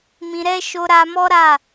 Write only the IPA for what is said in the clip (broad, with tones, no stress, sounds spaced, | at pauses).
m ĩ˧ ɾ ɛ˦ ʃ o˦ ɾ a˦ m ɔ˦ ɾ a˦˨